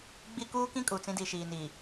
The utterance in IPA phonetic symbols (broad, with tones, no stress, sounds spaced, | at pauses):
ɡ͡b i˦ k uː˦ k ĩ˦ kʼ u˨ t͡s ĩ˦ d i˨ ʃ iː˨ n iː˨